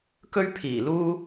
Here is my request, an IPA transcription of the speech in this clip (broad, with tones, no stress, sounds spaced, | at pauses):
k ɵ˥ ɥ pʰ iː˨˩ l uː˥